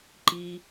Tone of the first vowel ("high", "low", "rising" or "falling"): low